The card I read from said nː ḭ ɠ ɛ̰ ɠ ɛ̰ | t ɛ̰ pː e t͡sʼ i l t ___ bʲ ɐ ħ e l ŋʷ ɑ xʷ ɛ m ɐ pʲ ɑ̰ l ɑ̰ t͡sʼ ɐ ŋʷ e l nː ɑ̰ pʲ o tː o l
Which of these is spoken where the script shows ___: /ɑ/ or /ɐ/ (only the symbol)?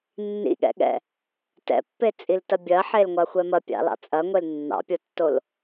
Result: ɐ